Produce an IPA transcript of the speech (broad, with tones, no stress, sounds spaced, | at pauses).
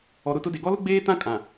ɔ˨ ɾ ʊ˦˨ t ʊ˦ d e˨ ɡ ɔ˦ l ʊ˦ ɡ͡b eː˦ t ã˦ kʼ ã˨